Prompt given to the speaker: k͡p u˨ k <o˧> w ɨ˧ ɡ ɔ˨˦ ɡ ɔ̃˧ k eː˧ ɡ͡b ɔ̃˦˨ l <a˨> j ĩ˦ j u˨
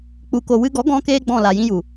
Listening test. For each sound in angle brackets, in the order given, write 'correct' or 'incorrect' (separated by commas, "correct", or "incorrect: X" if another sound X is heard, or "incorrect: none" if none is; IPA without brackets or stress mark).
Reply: incorrect: o˨, correct